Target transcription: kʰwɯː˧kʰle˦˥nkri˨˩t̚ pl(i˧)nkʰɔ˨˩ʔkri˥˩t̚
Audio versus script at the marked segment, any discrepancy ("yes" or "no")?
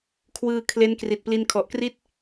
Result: no